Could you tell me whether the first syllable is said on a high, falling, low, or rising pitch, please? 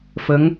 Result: rising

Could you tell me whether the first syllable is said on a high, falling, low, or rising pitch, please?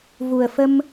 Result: low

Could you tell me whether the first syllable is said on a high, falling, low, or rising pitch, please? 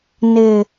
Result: low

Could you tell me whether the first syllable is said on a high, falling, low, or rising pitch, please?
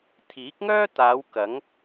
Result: rising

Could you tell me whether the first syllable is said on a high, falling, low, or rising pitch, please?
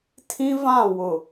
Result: high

